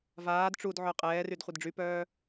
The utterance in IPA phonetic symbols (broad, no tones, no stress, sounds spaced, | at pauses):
v aː d ʈ͡ʂ u d ʕ œ qʼ ɛː r y d χʷ ə d ɖ͡ʐ y p œː